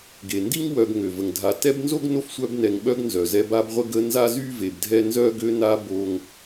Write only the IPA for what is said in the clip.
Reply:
ɡe˩ndi˥ŋ wœ˨ɡŋø˩və˩ŋdʱa˨ tɛ˦bnzo˥ɡ no˥fsʷœ˦b nɛ˨ŋɓœ˦ɡnzœ˩ zɛ˦ba˥bʁʷə˥ ɡə˦nza˥zy˥ ve˨bdʱɛ˥ nzœ˥ ɡø˦na˦ bo˥ŋ

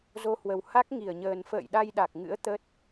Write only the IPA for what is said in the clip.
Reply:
zo˧hwə˨˩w ha˦˥k̚ ŋi˧˩ə̯ɲəː˨˩n fə̰ː˧˨jɗa˧jɗa˨˩k̚ŋɨ̰˧˥ə̯ t̪ə˦˥t̚

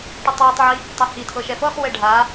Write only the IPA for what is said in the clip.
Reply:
ʈɯtˤwutˤʕi | tˤɛhitʰɤ ʃɛfɤχwɛ ɖʱa

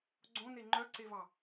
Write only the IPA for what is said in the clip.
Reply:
ɡ͡ǀõne ŋ͡ǃœǀevɑ

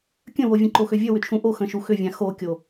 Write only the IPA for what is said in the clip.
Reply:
kʲə̃wovʲə̃ ǃoxʏvʲə wʏt͡ʃʰũʔo xə̃ʃuxʏvʲã xokʲo

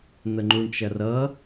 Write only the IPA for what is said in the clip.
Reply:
n̪əŋ͡ǃuɳt͡ʃɐrʌ

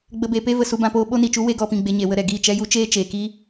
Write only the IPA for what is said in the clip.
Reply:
ɡ͡bə˧beː˧pe˦və˨ su˦bã˦poː˦ ɓo˦ni˨t͡ʃu˦ we˦ɡɔ˧pĩ˧ɡ͡be˧ ɲe˨wə˧ɾɛ˨ ɡiː˦˨t͡ʃɛ˦ju˦ t͡ʃeː˦t͡ʃeː˨kiː˦

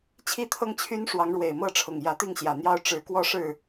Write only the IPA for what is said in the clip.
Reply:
t͡ɕʰi˥˨t̪ʰɤ˦ŋt͡ɕʰy˦n ʂwɑ˨˦ŋɻwe˨˩ɪ̯mɤ˥˨ʈ͡ʂʰʊ˨˩ŋ jä˨˦t̪i˥˨ŋɕjä˨˩n̪jɑ˦ʊ̯ ʈ͡ʂɻ̩˨˦ kwɔ˥˨ʂɻ̩˥˨

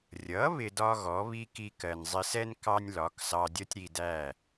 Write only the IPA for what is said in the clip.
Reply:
rʲʌ˩˥ βɪ˧dɒ˥ɣɔ˩˥βi˥ ki˧kɜ˩nzˤɪ˧sɛ˥n kɑ˥nʲlɒ˩˥ksɑ˧dʲʌ˥tʲ ɾi˧dæ˥˩

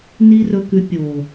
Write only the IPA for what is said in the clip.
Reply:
ni˦rɵ˧kʉ˧ pʲo˨

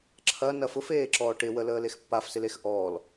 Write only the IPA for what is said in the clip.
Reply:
ǁʰɐnɐ fʊfeːǁɔː ʈɪwələːlex pːafsɪlex ʔɔːl

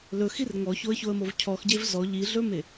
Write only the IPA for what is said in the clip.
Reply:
lɵxir ŋɔçoə̯çoə̯mov cʰɔxɟev zɔ ʎiɮɵme

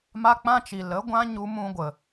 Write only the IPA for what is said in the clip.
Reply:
ma˦k͡pã˦t͡ʃi˨ lə˨˦ɡʷã˦ ɲu˦mũ˦ɡʷə˨

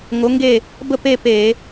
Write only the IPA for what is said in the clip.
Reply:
ŋo˩˥ŋɡe˥˩ | bə˥˩ pe˥˧pe˧˩˧

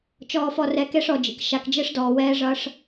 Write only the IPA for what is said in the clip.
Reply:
t͡ʃɔː˨fɔ˨rɛ˨ ke˦ʂɔ˨d͡ʒḭ˨k ʃa˨kd͡ʒe˦ʂdɔː˨wɛː˦ ʐʌ˦ʂ

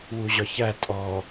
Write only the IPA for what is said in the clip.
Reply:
wuʑɒçæ tʼɔ

